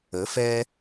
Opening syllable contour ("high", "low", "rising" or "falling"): rising